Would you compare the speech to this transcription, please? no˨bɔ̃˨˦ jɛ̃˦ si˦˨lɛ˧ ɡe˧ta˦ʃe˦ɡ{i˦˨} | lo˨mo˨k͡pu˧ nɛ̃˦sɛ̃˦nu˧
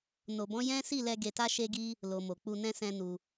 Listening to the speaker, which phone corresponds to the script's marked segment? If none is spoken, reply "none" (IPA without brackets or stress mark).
i˦